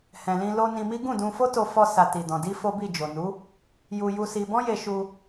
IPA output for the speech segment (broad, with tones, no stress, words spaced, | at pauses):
hɛ̃˨lĩ˧ lo˧ nĩ˧mi˦ ɡũ˦˨dũ˧fo˦to˧ fɔ˧sa˨ ti˨dɔ̃˨ di˧ fo˦bi˦˨d͡ʒo˨ nu˨˦ | ju˧ ju˧si˧ bɔ̃˦je˧ʃu˧